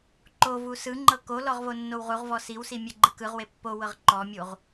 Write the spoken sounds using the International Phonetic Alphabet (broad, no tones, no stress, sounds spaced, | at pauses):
ǃ o v u s ɯ ŋ͡ǃ ɤ k o l ɔ ʁ v o nː o w ʁ u ʁ v ɔ s i w s i mʲ ɛ ɡ͡ǃ ɯ k ɯ ʁ w e pː o w ɤ ʁ ǃ ɔ mʲ u ʁ